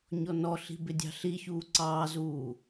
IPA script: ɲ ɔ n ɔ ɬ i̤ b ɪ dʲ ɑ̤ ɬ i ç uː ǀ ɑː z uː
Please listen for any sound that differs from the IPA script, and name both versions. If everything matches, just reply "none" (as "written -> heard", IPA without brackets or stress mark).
none